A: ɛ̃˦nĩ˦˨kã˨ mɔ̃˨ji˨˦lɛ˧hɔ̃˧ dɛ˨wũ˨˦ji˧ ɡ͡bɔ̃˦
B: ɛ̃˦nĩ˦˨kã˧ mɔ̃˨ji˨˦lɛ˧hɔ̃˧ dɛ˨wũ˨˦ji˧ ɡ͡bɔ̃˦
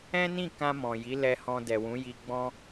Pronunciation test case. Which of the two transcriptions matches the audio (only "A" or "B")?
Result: B